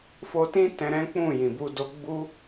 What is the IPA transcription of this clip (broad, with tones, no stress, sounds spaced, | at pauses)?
f o˧ t ĩ˦ t ɛ̃˧ ɾ ɛ̃˦ k͡p ũ˦˨ j ĩ˨ b u˧ d o˧ ɡ͡b u˦